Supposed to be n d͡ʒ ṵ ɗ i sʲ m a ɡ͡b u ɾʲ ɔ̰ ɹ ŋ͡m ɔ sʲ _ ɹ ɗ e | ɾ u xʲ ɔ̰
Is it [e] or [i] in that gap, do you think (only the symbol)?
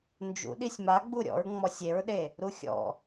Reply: e